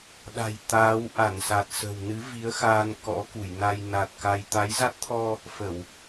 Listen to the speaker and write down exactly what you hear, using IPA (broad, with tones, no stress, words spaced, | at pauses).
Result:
ɗa̤˨˩j t̪aː˨˦wʔa˧˩nsa˨˩t̚ sə̤˨˩wnɨ˨˦ vi˨˦ə̯ xaː˧nkɔ̰˧˥ku˧˩jna˧j na˨˩t̚ ka˧j t̪a˨˦jza˦˥t̚t̪ʰɔ˧ | fə˧˩˨w